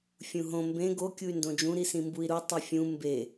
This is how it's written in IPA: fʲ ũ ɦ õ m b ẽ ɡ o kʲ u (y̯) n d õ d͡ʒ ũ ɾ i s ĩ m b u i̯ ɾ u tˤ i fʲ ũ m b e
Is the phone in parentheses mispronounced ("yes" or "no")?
no